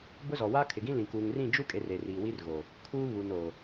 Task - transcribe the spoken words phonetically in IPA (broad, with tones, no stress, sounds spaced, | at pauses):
b ʊ˦ z ɔ˨ w a˦ kʰ ɪ˨ ɡ ĩ˦ l ĩ˨ k uː˨ ŋ r ĩ˦˨ d͡ʒ u˦ kʼ e˨ r e˨ r iː˨ w iː˦ r ɣ o˨ | kʰ uː˦ β u˨ n o˨